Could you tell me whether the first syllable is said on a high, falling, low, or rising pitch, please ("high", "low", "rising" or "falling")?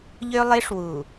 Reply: high